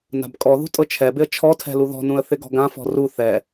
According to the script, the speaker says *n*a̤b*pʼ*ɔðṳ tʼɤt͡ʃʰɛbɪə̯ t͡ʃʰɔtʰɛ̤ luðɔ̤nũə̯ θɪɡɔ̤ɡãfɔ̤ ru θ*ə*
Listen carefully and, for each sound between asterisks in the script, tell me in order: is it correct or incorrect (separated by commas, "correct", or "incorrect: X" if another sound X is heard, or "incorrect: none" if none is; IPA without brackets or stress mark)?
correct, incorrect: kʼ, incorrect: ɛ